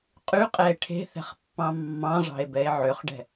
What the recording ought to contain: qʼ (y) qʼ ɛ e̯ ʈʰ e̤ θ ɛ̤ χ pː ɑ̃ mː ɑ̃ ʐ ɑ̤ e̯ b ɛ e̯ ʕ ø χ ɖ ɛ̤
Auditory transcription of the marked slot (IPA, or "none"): y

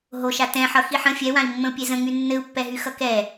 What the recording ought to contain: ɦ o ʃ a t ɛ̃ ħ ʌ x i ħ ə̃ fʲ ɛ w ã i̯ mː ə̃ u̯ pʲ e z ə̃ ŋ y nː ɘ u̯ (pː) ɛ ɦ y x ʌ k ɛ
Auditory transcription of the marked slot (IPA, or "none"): pː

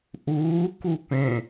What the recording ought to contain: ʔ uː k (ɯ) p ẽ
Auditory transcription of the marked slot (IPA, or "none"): u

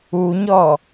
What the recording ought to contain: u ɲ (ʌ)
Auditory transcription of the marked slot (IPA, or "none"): ɔ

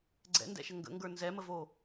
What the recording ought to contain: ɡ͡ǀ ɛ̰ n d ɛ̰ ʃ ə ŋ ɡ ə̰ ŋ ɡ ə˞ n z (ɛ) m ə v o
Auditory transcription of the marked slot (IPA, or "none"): ɛ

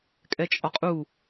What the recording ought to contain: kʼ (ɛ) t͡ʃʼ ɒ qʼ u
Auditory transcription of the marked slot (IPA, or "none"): ɛ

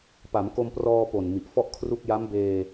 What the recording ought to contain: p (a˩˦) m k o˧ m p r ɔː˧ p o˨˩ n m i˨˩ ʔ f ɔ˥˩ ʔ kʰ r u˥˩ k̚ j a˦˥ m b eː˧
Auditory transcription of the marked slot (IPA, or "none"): a˩˦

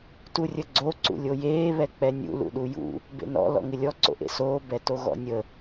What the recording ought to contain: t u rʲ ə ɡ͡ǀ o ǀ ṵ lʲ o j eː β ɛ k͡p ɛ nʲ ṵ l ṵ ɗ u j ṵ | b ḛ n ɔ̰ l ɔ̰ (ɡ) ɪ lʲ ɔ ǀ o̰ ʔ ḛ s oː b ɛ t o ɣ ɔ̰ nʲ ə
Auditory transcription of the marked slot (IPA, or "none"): ŋ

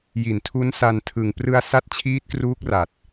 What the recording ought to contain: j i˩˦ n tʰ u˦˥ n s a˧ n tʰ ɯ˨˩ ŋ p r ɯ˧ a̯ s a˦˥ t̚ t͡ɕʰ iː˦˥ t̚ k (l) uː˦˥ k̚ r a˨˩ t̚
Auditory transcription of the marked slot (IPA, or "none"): r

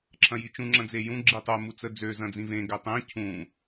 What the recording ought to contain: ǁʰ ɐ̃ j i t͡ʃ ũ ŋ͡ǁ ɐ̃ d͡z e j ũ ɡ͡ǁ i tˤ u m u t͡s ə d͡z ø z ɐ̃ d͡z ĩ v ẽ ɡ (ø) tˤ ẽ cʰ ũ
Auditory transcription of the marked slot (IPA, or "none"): ø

